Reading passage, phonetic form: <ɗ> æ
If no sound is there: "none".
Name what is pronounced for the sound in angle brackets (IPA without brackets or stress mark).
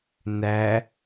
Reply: n